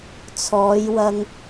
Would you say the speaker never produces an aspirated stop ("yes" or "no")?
no